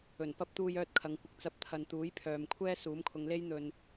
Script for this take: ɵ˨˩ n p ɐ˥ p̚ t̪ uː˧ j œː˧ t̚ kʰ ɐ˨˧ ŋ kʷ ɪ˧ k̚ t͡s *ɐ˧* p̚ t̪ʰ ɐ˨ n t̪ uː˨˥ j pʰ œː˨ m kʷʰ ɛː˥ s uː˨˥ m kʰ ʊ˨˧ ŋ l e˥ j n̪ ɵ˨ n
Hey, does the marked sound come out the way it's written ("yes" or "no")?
yes